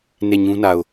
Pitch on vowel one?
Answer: falling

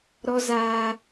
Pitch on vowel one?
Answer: high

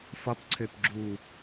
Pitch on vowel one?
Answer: rising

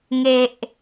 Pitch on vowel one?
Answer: low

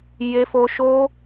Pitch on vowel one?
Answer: high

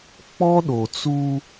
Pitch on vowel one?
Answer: high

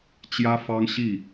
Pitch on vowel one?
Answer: high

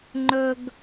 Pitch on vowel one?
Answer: high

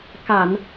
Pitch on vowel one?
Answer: low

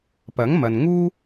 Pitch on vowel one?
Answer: rising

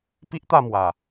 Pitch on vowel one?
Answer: high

